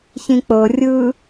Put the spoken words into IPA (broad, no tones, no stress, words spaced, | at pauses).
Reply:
çĩk͡pɤ rʲɯ